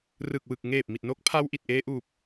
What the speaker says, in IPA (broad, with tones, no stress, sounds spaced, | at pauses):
r ɯ˨˩ k̚ w ɯ˨˩ k̚ ŋ eː˨˩ p̚ m i˨˩ t̚ n o˦˥ k̚ pʰ a˧ w ʔ i˨˩ t̚ ʔ eː˧ ʔ uː˨˩ p̚